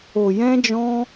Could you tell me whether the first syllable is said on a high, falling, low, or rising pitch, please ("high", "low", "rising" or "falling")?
low